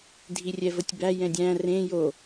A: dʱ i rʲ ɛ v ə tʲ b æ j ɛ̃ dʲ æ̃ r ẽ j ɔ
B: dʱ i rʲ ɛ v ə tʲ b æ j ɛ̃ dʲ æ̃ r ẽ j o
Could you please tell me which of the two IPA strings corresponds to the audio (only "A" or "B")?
B